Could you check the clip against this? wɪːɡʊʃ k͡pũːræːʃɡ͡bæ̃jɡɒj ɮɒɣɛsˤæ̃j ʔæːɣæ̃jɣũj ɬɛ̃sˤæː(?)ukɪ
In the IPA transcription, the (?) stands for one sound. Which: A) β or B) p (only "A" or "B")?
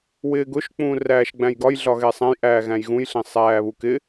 A